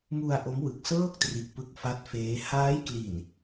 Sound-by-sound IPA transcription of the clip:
mu˧a̯ ʔo˦˥mwɯ˨˩k̚sɤː˥˩k̚tri˨˩ʔ pɯ˦˥k̚fa˦˥t̚feː˦˥ haː˦˥jkli˨˩n

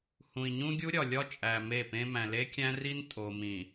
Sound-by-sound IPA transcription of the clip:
hũ˨i̯ɲũ˦ɡʲu˦ɾʲɒ˨ lʲɒ˦t͡ʃʼæ˨ me˦˨pẽ˦ mæ̃˨le˦kʲæ̃˦ri˦n tʼo˨mĩ˨

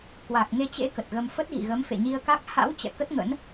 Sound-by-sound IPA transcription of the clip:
kwa˨˩k̚ŋe˧t͡ɕḛ˧˥ kə˨˩t̚ɣə˧m fə˦˥t̚ɣḭ˧˨ɣə˨˦m fḛ˧˨ɲi˧ə̯ka˦˥k̚ ha̰˧˥w t͡ɕɛ̰˧˨kə˦˥t̚ŋə̰˧˥n

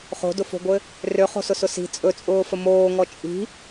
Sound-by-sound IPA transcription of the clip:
χo̤dʊfo̤ɡʷɘ | røχo̤sʊsʊ si̤ t͡sʼɵt͡sʼʊːfə moːŋɔ t͡ʃʼi̤

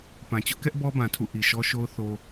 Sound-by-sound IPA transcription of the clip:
pã˨t͡ɕʊ˦ʔkɛ˦ʔ bɔ˦bã˨tʰṵ˦˨ ʔi˨ʃɔ˦ʃo˦ʊ̯ θo˦

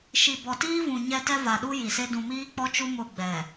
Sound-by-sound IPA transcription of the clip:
ʃi˨bɔ˨tiː˦vũ˨ ɲɛ˦ tɛ˦va˨ɗu˦ ji˨se˦ dũ˨miː˦k͡pɔ˦t͡ʃu˦ mʊ˦˨ɡ͡bɛ˨

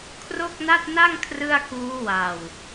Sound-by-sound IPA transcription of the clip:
kʰro˥˩k̚na˥˩t̚na˥˩ŋ kʰrɯ˥˩a̯kuː˦˥ wa˨˩w

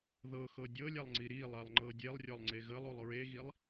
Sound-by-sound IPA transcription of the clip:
ðɤxɤ dʲɤlʲalˠŋ͡ǀi ɾilˠalˠŋ͡ǃɤ dʲelˠrʲɔlˠŋ͡ǀe ɣəlˠulˠ ɹeɣilˠ

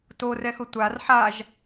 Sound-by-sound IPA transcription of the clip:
torɛxʊ tʷar ħaʒ

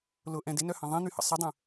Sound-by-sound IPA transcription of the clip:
lʊʔɛ̃ dɪnœhɐ̃ ðˤĩn̪yhə̰ sˤɪdˤə̃

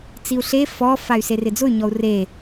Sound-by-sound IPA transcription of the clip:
t͡siu̯ɬe fɔ fay̯serɪd͡zʊy̯ ɲɔu̯re

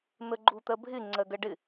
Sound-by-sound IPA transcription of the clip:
n̪əɡ͡ǃut̪ɜbʱɪ ŋ͡ǀɜɡɜɖɪ

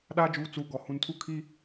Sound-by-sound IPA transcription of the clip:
ɗaː˦d͡ʒuː˨˦ t͡suː˨ ɡɔ˨ hũ˨ntʰu˦ kʰi˦

